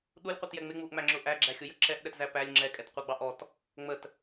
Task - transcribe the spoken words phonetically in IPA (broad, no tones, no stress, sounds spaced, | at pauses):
ɗ u lʲ qʷ i t j ɛ ŋ͡m ɪ ŋ͡m u ʔ ŋ͡m æ ŋ͡ǁ ʊ ʔ æ ɡ͡ǁ æ xʲ ʊ j ə ǁ ɛ ʔ ɗ ɛ t z æ p æ lʲ ŋ͡ǁ ɛ kʼ ɛ t qʷ ɑ ɡ͡b ɑ ʔ ɔ t | ŋ͡m ə t